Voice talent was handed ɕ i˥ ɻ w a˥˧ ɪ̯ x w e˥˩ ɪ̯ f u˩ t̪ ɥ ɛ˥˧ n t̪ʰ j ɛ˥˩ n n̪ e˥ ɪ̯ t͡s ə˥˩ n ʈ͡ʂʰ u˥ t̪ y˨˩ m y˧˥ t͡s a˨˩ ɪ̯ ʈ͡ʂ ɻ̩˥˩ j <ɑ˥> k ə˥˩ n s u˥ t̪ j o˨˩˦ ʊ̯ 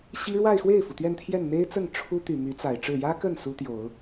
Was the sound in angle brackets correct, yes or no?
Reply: no